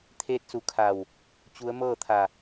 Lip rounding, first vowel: unrounded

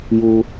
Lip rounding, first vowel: rounded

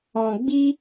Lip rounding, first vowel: rounded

